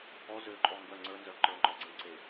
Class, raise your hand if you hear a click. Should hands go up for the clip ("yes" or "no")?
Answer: yes